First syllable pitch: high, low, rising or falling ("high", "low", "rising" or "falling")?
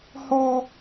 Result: high